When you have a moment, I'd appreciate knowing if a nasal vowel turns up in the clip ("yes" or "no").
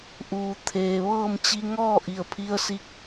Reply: no